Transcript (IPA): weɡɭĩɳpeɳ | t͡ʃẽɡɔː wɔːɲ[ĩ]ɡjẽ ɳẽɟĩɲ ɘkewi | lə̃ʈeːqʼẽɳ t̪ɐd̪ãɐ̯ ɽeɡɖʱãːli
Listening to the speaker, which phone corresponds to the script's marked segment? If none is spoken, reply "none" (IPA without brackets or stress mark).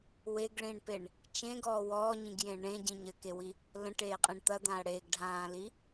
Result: ĩ